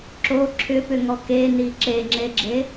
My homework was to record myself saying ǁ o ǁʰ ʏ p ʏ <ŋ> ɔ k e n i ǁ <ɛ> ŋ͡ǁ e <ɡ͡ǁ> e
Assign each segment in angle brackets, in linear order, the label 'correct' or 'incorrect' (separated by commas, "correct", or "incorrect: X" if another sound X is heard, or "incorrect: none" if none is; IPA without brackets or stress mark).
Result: correct, incorrect: e, correct